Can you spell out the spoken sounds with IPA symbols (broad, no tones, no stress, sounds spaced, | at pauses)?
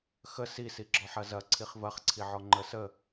x ə s i s i ɡ͡ǁ ɔ ħ ɐ z ɐ ǀʰ i χ v ɐ χ ǀʰ i ʕ ɔ ŋ͡ǃ ə s ə